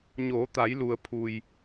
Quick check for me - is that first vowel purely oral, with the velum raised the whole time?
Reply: yes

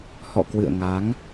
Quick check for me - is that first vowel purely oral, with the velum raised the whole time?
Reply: yes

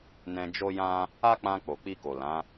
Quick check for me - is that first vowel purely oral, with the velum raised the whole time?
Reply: no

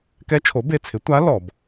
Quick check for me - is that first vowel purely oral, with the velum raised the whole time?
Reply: yes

